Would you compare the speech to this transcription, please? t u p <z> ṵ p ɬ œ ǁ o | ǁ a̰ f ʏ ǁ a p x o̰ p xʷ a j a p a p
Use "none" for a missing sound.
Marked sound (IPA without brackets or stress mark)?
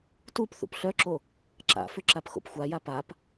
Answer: θ